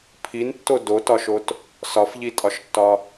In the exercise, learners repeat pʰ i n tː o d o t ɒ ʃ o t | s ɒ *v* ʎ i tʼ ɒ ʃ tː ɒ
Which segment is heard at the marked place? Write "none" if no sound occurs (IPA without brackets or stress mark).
f